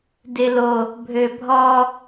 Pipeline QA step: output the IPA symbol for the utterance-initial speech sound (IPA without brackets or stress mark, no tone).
d